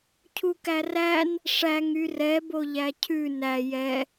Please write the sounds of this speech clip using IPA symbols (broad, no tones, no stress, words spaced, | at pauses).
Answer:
cʰukæræn | ʂæŋ yrɛ boʎæcʰʉ næ jɛ